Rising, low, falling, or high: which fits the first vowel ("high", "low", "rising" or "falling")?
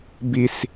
low